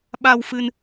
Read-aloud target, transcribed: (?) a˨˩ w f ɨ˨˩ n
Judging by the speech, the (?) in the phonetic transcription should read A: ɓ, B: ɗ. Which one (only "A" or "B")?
A